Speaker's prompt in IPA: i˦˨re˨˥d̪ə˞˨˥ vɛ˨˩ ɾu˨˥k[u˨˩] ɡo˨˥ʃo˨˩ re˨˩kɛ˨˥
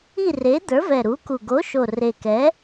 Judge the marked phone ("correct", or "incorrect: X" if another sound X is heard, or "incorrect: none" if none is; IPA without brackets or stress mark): correct